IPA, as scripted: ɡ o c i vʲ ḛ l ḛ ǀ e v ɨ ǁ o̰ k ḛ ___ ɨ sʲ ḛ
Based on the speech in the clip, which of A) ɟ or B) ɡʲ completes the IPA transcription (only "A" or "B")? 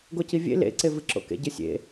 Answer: A